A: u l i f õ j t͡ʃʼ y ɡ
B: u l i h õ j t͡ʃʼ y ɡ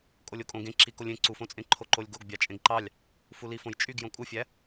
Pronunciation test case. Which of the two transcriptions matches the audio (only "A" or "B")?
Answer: A